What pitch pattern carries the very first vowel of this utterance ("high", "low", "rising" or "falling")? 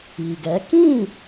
low